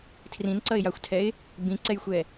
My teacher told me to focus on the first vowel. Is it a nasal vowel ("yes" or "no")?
yes